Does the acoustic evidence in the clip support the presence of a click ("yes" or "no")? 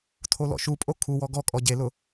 no